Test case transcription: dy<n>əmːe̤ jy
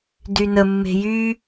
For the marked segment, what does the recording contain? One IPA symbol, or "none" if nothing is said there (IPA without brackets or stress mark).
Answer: n